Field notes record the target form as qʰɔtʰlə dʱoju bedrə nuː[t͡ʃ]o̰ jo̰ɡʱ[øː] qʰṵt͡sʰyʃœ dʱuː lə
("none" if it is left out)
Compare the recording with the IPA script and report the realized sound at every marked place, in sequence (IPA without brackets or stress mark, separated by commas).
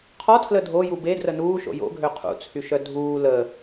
ʃ, ø